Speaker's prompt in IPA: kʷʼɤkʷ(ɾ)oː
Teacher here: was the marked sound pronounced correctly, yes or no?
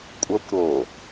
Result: yes